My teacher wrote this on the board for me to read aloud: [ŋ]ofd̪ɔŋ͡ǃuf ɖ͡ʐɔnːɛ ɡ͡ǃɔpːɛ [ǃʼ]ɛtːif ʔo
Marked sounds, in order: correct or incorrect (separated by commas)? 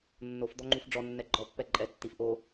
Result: incorrect, correct